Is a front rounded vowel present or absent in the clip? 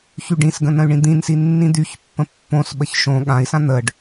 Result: present